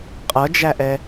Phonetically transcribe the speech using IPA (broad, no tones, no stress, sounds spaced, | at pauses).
qʼ ʌ d͡ʒ æ ʔ ɛ